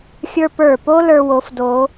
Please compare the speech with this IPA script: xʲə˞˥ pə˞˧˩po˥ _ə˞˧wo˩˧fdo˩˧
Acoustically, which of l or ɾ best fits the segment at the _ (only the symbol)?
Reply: l